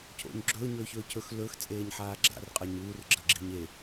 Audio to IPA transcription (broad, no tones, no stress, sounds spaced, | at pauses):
cʰ o̰ ɲ ɡ͡ǁ ɵː ɲ ɵː ç ɵː cʰ ɵ x l ɵ x t͡sʼ eː ɲ ħ aː ɡ͡ǁ a̰ r qʼ ɐ ɲ uː r ɡ͡ǁ ɐ ɡ͡ǁ i̤ ɲ e